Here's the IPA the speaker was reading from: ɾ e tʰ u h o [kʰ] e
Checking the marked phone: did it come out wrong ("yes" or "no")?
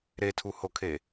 no